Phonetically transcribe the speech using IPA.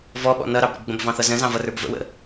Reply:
v ɔ ɓ ɔ̰ n ʌ ɾ ɑ b ɾ ə̰ b ɡ͡b ə̃ b v ɑ̃ θ ʌ z ə̃ z ɑ̃ v ʌ r ə˞ b v ə̰ w ə̰

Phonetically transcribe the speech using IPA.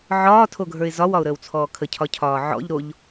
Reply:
ʕ ɒː tʰ o ɡʱ ə˞ ɪ̯ z ɒ w ɒ ʊ̯ ɾ əː w t͡sʰ ɔː kʰ ə cʰ ɒ cʰ ɒː ʕ ɔ̰ ʎ ɾ o ʎ

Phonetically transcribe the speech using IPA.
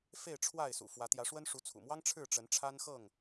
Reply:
f e˥˨ ɪ̯ ʈ͡ʂʰ w a˥˨ ɪ̯ s ṵ˨˩ f w ä˨˦ t̪ j ä˨˦ ʂ w ə˦ n ʂ u˨˦ t͡sʰ ṵ˨˩ m w ɑ˦ ŋ ʈ͡ʂʰ ɻ̩˥˨ ʈ͡ʂ ə˨˦ n ʈ͡ʂʰ a˦ n x ɤ˥˨ ŋ

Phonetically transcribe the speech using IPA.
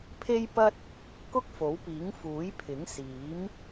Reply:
pʰ e˥ j p ɐ˥ t̚ | k ʊ˥ k̚ f o˨˥ w p iː˨˥ ŋ f uː˨˥ j pʰ ɪ˨˥ ŋ s iː˨˥ m

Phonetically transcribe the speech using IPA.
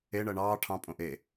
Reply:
e ɳ ɜ ɳ ɑː ʈʰ ɑ̃ pʼ õ ʔ e

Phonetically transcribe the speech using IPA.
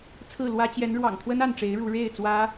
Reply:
t͡sʰ ɹ̩˥˨ l w ä˦ t͡ɕ j ɛ˨˦ n ɻ w ɑ̰˨˩ ŋ t̪ʰ w ə˦ n a˥˨ n ʈ͡ʂ e˨˦ ɪ̯ ɻ u˨˦ ɻ e˥˨ ɪ̯ t͡s w ä˦

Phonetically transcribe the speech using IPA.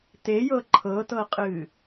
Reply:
t e j ɤ ǃʰ ɤ t ɤ qʼ ɨ

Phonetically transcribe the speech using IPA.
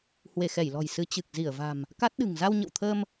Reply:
h w e˧˩ x ɛ˧˩ j l ɔ̤˨˩ j s ɨ˨˦ t͡ɕ ɨ˨˩ k̚ z i˧˩ ə̯ v a̤˨˩ m | k a˦˥ t̚ ɗ ɨ̤˨˩ ŋ z a˧ w ɲ ə̰˧˨ w t̪ʰ əː˧ m

